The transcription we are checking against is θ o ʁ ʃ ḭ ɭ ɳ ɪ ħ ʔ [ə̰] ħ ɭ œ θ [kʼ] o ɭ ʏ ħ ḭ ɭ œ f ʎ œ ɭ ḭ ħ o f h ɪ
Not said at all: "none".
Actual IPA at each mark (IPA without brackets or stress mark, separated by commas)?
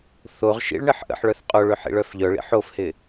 ə̰, qʼ